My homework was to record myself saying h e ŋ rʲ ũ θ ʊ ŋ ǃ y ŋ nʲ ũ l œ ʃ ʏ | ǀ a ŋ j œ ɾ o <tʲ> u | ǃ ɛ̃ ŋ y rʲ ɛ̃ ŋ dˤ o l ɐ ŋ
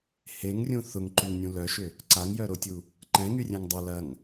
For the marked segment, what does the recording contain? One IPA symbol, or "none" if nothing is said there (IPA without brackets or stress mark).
tʲ